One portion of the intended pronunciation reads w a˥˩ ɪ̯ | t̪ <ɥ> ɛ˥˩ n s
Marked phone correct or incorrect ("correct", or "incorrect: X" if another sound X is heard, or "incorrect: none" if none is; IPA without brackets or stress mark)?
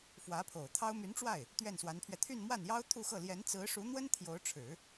correct